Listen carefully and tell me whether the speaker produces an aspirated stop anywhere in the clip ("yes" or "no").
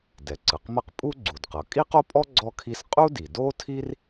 yes